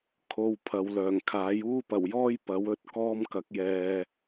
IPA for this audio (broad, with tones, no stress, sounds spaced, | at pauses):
kʰ o˧ w pʰ ɐ˨ w l œː˨˩ ŋ kʰ aː˨˥ j uː˥ p ɐ˨˩ w j ɔː˥ j p ɐ˨˥ w ɵ˥ t̚ k ɔː˧ m k ɐ˨˥ k̚ j ɛː˨